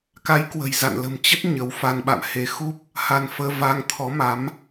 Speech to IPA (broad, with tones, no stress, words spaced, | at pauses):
ka˨˦j kwə̤˨˩jza̰˧˨nlə̤˨˩m t͡ɕə˦˥t̚ ɲə˨˦wfa˧n ɓa̰˧˨mhe˨˦ xu˦˥p̚ | ha˧nfəː˧ va˧ŋt̪ʰɔ˨˦ma˨˦m